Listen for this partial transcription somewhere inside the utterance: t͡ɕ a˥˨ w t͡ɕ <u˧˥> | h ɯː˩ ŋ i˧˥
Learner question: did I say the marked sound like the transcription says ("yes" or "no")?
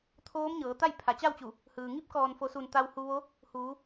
no